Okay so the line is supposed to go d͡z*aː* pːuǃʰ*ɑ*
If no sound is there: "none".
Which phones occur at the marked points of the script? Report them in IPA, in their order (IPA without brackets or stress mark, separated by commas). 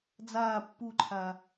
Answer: aː, a